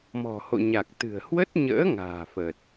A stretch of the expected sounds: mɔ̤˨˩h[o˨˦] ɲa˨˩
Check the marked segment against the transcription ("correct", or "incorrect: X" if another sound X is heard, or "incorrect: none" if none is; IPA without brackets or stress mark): incorrect: o̰˧˨